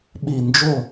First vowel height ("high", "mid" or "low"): high